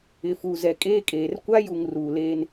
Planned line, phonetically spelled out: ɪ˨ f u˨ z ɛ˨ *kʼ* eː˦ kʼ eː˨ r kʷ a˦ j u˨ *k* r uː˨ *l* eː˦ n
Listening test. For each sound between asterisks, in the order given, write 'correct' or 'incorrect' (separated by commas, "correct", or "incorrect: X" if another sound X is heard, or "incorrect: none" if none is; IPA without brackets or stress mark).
correct, incorrect: ŋ, correct